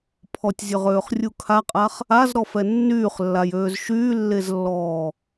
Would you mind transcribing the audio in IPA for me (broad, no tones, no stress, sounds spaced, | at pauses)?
pʰ ɔ tʲ zʲ ø ʁ øː χ rʲ u kʰ a qʼ a χ | a z ɾ ɔ f ɛ nː yː χ lː a j øː z ʃ yː lː e z lː ɔː